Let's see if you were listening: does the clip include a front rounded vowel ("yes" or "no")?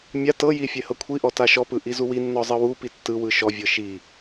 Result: no